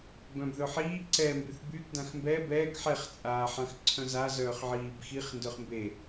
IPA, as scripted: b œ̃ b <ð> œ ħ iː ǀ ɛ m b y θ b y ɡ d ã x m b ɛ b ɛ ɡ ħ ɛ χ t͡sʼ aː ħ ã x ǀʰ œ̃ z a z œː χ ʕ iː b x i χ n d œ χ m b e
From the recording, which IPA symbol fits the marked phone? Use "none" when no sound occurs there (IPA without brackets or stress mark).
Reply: ð